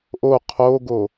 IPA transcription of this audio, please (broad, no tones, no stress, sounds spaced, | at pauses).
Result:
ʔ o qʰ o ɡ o